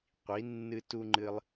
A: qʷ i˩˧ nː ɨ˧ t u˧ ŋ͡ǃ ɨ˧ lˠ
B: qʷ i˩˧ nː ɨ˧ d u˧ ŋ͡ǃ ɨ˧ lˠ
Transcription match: A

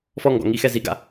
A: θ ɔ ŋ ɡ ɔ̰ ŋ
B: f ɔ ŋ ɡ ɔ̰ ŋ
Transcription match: B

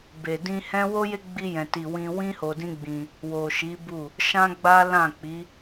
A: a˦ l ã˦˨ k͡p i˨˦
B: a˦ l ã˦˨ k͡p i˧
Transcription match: A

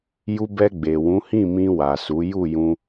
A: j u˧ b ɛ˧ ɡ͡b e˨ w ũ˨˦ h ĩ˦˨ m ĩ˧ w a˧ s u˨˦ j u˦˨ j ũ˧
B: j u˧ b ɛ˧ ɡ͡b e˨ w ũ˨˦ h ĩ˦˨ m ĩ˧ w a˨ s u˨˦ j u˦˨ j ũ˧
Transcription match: B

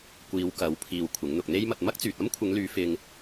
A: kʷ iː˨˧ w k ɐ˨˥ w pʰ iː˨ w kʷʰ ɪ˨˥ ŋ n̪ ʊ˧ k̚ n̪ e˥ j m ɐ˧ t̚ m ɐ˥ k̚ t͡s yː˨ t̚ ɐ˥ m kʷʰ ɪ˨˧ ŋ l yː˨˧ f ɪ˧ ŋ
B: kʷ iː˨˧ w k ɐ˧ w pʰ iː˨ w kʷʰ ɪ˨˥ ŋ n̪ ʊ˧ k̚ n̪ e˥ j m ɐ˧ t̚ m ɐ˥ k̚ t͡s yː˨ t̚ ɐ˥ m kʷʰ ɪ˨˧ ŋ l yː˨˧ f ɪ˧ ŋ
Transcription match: A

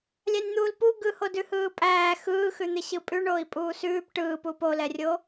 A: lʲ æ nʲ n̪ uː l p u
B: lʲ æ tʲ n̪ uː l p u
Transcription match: A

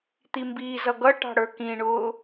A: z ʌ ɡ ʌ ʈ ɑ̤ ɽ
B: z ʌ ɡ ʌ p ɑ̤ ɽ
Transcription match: A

